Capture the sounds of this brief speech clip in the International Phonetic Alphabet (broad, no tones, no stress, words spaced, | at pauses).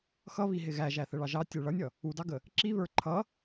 xʌβiɦɪ ɣæʒæθəɭɑ ʒɑtʲə˞ ɭʌnʲʌ | udɑɡə | ǁiβə˞ ǃʰʌ